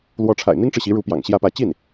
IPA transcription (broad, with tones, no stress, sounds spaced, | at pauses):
l w ɔ˧˥ ʈ͡ʂʰ a̰˨˩ ɪ̯ n̪ i˥ ŋ ʈ͡ʂ ɻ̩˨ ɕ i˧˥ ɻ u˧˥ p j ɑ̰˨˩ ŋ ɕ j ä˥˧ p ä˥˧ t͡ɕ i˥˩ n